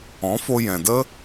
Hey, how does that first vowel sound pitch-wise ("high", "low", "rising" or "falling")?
rising